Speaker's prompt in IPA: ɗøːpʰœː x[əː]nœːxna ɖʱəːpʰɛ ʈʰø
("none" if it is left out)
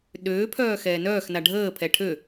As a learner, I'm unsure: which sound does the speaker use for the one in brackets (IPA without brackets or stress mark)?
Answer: ɛː